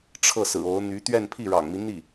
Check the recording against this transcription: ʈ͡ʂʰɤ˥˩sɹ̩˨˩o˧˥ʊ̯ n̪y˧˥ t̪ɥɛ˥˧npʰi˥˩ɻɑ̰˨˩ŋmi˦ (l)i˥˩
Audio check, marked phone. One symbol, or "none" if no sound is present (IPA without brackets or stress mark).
n̪